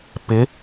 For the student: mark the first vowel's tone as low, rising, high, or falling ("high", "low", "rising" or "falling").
rising